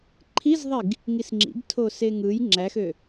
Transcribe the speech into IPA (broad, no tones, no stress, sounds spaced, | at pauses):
ǃʰ i z ðˤ i ɡ | ŋ i s ŋ͡ǁ ḭ ɡ tʰ o s e ŋ ɯ j ŋ͡ǁ æ x ø